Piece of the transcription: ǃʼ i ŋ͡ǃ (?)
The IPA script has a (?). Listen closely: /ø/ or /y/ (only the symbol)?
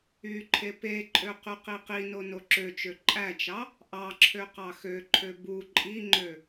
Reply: ø